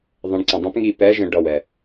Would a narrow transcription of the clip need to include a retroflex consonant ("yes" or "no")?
yes